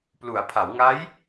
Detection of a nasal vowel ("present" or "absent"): absent